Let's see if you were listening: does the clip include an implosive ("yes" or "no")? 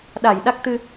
yes